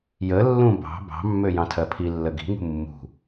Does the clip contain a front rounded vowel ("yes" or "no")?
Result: yes